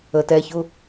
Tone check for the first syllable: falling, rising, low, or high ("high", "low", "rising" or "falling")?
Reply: low